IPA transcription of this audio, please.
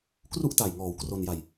kru˥˩ʔta˨˩jŋɔː˨˩w kro˧nja˧j

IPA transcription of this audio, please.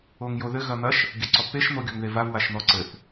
oŋjoðɘ ɣɐn̪ɐʃ | ɡʲɘǀɔpːeʃ n̪oɡʲoŋðevav waʃn̪ɔǀɘθ

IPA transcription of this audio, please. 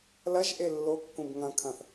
lɐʒʔe lːo kːũbŋɐ̃kʰɐ̃θ

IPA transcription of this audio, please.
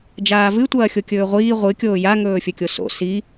d͡ʒaːvɨtʷɐː xʲokʲɵːʁʷiː ʁʷɨkʲoː jaŋɵːfʲɵkʲo so̰ si

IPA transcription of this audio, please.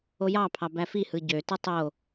ojɑpʰɑ bæfihɯ ɟøtɯ tˤo

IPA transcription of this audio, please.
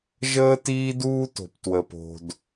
ʒəː˥tiː˥duː˥to̤˩p twə˩po̤˩d

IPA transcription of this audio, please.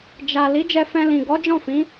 d͡ʒa˨ li˨˦d͡ʒɛ˧ fɛ̃˧lĩ˨ ɡɔ˨˦d͡ʒɔ̃˦˨fĩ˨˦

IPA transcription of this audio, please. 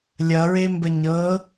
lʲʌɹembə ɲɤ

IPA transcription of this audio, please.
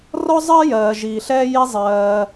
rɔ˥zˤɜ˥jɜː˩ ʒiː˨ɬɛː˥ ji˦zˤɜː˨

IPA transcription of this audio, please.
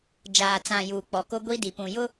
d͡ʒaː˨t͡sã˨ juː˨k͡pɔ˨ko˦ ɡʷi˦di˨pũ˨jʊ˦

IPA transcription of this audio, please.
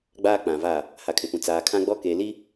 ɡ͡baː˦k͡pã˨vaː˦˨ | ha˨kʰɪ˨pũ˨ t͡saː˨kʰã˦ɡ͡bɔ˦ keː˨li˦

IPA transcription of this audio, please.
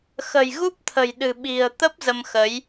xə̤˨˩jɣu˦˥p̚t̪ʰə̤˨˩jɗɨ̤˨˩ ɓi̤˨˩ə̯ t̪ə˦˥p̚ zə˧mxə˨˦j

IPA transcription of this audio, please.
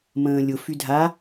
mə̃ːlʲʊfy dʱa

